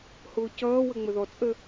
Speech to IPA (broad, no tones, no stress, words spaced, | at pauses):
hʊːcʌːwə ŋ͡məðɔt͡sʼə